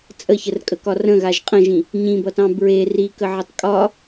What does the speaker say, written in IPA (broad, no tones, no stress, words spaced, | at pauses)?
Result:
t͡sʼəçərkʼəkɒ rə̃ɣaʒ qʼə̃ʒĩ | ɲĩbʌtɑ̃ bɹe rikəʕʌtˤ kʼɒ